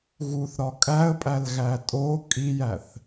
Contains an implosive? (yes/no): no